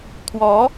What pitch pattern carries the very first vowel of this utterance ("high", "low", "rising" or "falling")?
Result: rising